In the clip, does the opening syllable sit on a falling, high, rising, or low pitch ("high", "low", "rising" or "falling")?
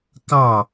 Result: falling